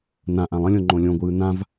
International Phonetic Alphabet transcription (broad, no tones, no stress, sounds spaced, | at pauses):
n ã ʔ ã lˠ ə̃ lʲ õ ŋ͡ǃ õ lʲ õ ɡʷ ɯː n ã v